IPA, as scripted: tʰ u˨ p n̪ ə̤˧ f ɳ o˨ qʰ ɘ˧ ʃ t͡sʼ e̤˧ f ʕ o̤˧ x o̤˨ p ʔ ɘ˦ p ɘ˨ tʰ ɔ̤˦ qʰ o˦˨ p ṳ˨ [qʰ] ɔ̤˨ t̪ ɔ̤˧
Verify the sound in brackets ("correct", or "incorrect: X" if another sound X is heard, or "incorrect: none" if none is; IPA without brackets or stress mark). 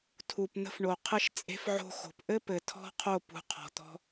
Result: correct